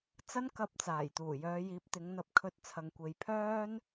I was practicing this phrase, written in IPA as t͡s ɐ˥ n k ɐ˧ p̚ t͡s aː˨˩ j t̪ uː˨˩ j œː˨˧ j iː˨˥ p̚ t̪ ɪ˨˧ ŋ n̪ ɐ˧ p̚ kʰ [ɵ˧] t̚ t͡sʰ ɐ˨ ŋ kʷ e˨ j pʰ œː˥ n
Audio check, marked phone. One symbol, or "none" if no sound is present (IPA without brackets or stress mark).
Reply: ɵ˧